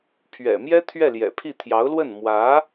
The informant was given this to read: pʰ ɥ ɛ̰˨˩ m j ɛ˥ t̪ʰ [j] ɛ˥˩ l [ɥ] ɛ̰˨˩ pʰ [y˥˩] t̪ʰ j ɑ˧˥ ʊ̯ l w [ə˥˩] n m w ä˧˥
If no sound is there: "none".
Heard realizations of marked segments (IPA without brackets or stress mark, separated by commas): ɥ, j, i˥˩, ə˥˩